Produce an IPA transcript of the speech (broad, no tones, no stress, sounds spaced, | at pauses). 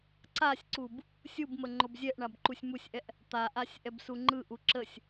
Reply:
ǀ a sʲ ǀ u b | sʲ u b m ə ŋ͡ǃ o b zʲ ɛ ʔ ɳ a b ǃ u sʲ m u sʲ ʔ ɛ ʔ | t̪ a ʔ a sʲ ʔ ɛ b s u ŋ͡ǃ ɯ ʔ u ǁ ə sʲ